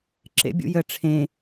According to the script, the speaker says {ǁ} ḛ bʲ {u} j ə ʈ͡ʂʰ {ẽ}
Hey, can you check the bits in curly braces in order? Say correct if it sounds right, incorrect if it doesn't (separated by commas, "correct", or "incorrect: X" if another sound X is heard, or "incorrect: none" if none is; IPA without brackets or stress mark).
correct, incorrect: ṵ, correct